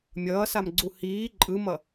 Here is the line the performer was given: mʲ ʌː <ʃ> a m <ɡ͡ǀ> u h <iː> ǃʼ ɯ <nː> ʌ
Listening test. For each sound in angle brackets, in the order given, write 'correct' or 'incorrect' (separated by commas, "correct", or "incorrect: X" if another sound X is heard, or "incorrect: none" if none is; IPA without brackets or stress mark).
incorrect: s, correct, correct, incorrect: m